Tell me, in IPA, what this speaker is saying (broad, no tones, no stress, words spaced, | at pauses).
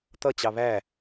t̪ʌ t͡ɕɑβæ